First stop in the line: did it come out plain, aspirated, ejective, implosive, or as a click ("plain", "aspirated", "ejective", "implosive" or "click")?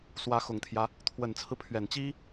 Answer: aspirated